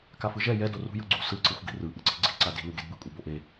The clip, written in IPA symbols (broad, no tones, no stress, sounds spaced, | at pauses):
k a f ɯ ʒ ɛ j ɛ d o r ṳ j ɯ ɡ͡ǀ ṳ s ɯ ǀ ɯ xʷ ɡ i̤ r ɯ ʔ ɯ ǀ i̤ ɡ͡ǀ i̤ ǀ a d i̤ l u ɡ e d b ɯ kʷʼ ɯ b o ʔ e